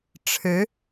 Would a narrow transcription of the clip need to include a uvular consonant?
no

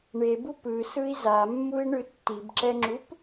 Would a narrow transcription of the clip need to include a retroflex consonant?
yes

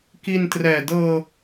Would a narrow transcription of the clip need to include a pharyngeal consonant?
no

